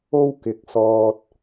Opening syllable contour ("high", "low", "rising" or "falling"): high